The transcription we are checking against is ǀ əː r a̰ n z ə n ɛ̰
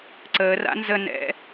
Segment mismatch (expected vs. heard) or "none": none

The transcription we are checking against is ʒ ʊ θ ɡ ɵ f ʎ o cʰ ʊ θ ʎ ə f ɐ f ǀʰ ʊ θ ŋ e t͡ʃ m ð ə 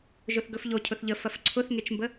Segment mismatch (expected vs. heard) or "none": ð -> b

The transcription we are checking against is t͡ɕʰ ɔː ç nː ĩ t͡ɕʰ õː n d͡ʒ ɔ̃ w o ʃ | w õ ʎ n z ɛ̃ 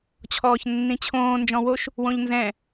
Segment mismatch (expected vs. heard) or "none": none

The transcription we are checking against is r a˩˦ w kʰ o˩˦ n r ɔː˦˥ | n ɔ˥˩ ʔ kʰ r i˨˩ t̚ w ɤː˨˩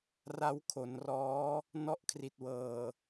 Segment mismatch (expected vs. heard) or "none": a˩˦ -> a˦˥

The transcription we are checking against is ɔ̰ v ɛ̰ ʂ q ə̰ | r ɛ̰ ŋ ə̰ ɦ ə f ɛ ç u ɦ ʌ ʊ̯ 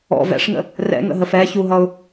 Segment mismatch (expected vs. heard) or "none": q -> ŋ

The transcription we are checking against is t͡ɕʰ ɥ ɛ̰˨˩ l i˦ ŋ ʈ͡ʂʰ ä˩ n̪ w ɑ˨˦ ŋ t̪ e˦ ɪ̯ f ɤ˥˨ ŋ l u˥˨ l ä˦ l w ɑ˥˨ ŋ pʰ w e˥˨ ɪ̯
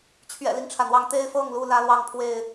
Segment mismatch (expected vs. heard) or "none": none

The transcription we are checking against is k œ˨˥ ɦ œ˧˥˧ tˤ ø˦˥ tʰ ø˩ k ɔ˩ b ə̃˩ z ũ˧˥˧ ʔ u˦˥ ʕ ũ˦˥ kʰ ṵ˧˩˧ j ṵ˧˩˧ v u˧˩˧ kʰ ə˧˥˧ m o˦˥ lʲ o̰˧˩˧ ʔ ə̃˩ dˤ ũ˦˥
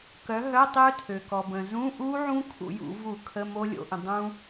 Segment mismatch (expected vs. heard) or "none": none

